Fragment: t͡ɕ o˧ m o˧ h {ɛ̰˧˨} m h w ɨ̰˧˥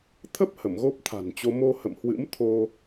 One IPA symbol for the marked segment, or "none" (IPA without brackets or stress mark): ə̰˧˨